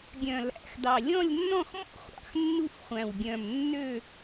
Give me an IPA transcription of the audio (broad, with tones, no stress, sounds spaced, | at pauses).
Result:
ɡʲ œ̃˨˩ l æ̰˨˩ x d ɑ˨˩ lʲ ɔ̃˥˨ lʲ nː ɔ̃˥˨ x m ɔ̰˥˨ χʷ ɑ̰˨˩ x nː u˥˨ f χʷ æ̃˨˩ w ɡʲ œ̃˨˩ m nː ø˥˨